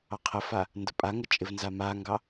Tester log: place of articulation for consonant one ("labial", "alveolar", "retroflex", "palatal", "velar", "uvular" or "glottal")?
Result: uvular